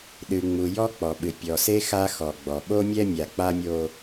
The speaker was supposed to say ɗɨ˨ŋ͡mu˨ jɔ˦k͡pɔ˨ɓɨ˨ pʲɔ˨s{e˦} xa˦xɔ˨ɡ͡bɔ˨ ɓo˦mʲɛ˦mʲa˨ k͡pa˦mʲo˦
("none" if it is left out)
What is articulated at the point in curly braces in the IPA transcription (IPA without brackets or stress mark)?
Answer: e˦